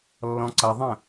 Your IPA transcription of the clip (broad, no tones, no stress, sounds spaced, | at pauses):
lː ɔ̃ ǀ ʌ ðˤ ə̃